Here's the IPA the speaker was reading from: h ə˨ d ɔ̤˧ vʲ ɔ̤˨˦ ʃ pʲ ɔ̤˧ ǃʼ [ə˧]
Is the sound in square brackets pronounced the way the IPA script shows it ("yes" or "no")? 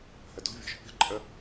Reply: yes